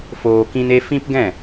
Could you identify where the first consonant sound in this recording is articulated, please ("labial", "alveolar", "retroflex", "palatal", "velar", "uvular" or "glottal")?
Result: labial